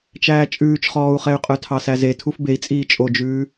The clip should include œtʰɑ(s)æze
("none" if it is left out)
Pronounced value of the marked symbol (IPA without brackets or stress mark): s